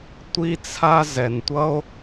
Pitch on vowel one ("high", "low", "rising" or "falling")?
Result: high